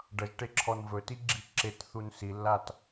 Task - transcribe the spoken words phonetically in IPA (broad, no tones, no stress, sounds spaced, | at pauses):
ɖ ʌ ʒ ʈ e ǁʰ ɔ n v ɵ t i ɡ͡ǁ i ǁ e t θ u n s i lː a t